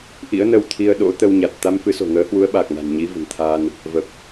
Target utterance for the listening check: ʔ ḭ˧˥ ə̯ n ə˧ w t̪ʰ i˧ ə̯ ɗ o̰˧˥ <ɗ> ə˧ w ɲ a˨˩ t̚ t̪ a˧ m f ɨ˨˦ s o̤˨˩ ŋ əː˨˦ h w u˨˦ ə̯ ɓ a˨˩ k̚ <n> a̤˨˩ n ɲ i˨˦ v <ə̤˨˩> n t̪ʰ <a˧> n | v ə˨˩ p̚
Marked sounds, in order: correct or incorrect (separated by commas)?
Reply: incorrect, correct, correct, correct